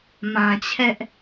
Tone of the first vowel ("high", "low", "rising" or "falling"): low